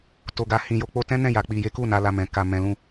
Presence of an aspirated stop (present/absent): absent